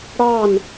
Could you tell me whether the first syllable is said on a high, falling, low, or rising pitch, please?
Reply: falling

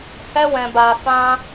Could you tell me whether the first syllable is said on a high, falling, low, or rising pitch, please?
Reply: high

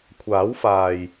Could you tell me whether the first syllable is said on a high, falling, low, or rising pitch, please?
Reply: rising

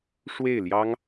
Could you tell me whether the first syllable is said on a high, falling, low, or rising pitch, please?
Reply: falling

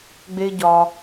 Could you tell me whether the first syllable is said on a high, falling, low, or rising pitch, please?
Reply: high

